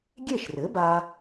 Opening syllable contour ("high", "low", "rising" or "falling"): falling